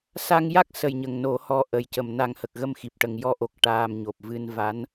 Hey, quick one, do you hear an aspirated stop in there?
no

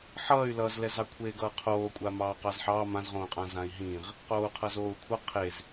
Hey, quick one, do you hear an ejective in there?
yes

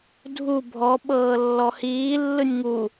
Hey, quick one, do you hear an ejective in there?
no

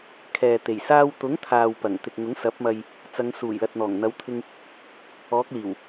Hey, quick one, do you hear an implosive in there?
no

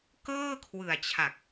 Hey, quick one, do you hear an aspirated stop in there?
yes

